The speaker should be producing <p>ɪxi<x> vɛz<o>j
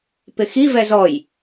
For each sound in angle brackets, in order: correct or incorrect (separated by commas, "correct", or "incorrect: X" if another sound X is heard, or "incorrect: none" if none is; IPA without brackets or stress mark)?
correct, incorrect: none, incorrect: ɔ